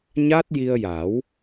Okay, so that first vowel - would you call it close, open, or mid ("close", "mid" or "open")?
open